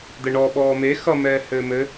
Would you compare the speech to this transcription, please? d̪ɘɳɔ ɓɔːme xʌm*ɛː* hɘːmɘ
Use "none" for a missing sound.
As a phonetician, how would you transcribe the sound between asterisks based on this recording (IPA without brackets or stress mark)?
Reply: ɛː